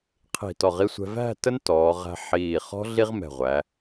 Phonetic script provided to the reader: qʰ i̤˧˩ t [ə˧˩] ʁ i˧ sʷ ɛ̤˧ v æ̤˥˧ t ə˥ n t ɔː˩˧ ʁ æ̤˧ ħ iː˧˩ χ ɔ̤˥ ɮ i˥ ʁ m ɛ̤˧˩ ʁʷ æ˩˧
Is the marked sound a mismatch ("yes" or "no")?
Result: yes